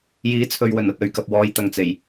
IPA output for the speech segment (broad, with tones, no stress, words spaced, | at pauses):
jiː˨˥t͡sʰɵ˨ɥwɵ˨˩n ɐ˨t̚ɵ˨ɥkɐ˨p̚wɔː˨˧j t̪ɐ˨ŋt͡se˨˩j